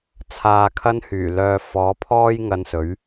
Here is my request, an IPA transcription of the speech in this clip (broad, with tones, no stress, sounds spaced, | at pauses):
t͡sʰ aː˨ kʰ ɐ˧ n h yː˨˩ l œː˨ f ɔː˨˥ pʰ ɔː˥ j ŋ ɐ˧ n s ɵ˨˥ ɥ